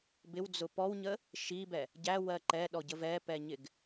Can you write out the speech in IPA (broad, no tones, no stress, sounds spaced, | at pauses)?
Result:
b ɪ w d͡z ʊ p ɔ w ɲ ə | ʃ i b ɛ | ɟ æ w ɜ ǃ ɛ ɗ ɔ ɟ ə v ɛ p ɛ ɲ ɪ ɡ